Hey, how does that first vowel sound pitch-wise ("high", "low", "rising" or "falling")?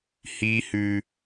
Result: high